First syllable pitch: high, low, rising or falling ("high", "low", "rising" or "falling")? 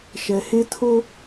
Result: low